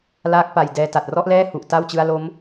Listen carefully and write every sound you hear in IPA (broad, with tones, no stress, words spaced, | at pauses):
laː˦˥k̚pa˨˩j dɛː˧ta˨˩t̚ rɔ˥˩ʔlɛː˥˩hu˨˩ʔ ta˥˩wt͡ɕɯ˦˥a̯lo˦˥m